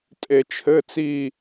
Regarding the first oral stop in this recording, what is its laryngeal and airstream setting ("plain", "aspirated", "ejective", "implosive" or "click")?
ejective